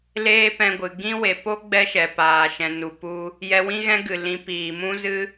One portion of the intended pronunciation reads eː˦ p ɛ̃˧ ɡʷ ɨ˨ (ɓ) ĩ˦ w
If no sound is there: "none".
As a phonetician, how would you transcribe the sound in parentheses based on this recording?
ɡ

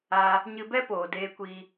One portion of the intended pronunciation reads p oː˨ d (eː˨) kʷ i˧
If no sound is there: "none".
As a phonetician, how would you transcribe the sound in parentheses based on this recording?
eː˧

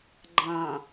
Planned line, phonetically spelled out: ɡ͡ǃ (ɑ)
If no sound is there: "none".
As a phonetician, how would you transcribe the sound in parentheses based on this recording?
ɑ̃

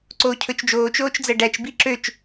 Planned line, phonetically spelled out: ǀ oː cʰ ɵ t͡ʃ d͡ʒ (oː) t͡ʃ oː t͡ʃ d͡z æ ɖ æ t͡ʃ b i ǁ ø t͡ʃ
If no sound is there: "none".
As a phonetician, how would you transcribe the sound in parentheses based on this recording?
oː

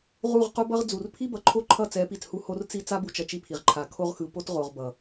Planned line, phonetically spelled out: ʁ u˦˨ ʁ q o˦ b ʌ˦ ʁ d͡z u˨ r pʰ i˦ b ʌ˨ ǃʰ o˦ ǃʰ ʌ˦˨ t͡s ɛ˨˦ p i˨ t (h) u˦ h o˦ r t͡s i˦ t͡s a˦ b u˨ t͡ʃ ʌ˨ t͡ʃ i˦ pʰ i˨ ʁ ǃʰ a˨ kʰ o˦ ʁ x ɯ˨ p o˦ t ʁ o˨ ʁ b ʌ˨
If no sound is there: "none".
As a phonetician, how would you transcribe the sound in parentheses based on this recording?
h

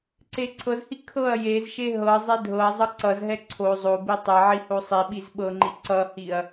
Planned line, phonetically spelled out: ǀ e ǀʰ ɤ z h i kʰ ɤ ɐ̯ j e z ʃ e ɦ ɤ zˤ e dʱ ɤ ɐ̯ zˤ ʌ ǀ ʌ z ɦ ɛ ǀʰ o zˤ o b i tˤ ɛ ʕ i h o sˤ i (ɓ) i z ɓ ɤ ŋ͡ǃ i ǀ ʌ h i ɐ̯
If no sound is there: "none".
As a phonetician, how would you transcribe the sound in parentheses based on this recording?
ɓ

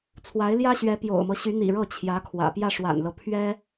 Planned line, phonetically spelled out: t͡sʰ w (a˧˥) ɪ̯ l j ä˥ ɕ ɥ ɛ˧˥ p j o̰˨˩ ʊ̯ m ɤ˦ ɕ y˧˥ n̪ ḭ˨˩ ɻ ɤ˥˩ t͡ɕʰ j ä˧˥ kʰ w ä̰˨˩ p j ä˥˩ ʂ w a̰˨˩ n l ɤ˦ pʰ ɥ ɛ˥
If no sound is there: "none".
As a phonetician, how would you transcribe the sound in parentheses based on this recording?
a˧˥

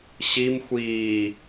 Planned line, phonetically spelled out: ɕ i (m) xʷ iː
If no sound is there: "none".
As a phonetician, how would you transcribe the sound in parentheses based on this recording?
m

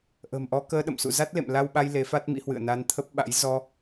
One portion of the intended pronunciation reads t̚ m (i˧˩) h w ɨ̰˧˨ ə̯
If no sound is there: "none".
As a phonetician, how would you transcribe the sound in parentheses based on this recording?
ḭ˧˥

